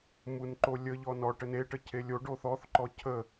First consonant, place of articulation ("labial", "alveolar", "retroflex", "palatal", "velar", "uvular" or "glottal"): labial